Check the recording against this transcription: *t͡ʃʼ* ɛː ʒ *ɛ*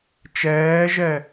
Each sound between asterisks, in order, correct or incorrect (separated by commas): incorrect, correct